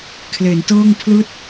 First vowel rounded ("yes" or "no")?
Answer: no